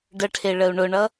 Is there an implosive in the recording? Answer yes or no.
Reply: no